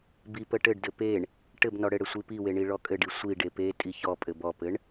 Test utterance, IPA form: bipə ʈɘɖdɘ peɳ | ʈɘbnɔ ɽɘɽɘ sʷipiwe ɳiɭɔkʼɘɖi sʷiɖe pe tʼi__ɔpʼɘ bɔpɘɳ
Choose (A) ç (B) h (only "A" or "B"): A